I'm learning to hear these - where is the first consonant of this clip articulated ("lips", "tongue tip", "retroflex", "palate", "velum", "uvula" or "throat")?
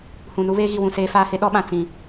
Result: throat